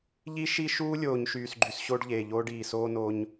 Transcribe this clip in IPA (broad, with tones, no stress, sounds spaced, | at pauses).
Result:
ʎ i˦ ʃ i˦ ʃ uː˦ lʲ oː˨ ɲ ʃ yː˨ s ɡ͡ǃ y˨ s ɕ o˦ ɖ ʎ eː˨ ʎ oː˦ ɖ iː˨ s oː˦ n oː˦ ɲ